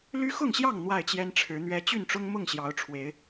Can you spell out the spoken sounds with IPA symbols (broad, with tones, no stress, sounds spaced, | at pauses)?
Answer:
l y˦ x ʊ˥˨ ŋ ɕ j ɑ˥˨ ŋ n̪ w a˥˨ ɪ̯ t͡ɕ j ɛ˦ n ʈ͡ʂʰ ɻ̩˨˦ n̪ ɥ ɛ˦ t͡ɕ y˥˨ n ʈ͡ʂ ʊ˦ ŋ m ʊ˥˨ ŋ ɕ j ɑ˨˦ ʊ̯ ʈ͡ʂʰ w e˨˦ ɪ̯